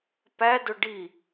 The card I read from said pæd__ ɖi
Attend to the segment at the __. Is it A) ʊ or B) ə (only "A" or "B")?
A